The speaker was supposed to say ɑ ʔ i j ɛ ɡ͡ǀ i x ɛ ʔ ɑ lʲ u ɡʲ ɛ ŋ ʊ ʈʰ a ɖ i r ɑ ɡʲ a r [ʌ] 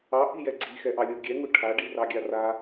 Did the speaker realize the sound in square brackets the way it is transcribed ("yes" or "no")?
no